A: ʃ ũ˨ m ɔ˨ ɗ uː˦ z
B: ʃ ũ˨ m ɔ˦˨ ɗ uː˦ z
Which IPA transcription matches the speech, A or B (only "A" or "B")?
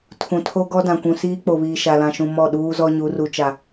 B